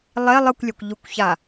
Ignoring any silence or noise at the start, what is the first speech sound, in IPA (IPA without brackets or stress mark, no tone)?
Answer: lˠ